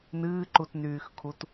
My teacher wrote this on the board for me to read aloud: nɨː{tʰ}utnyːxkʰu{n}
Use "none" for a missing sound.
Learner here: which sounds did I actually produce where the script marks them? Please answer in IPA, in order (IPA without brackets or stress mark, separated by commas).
ǃ, t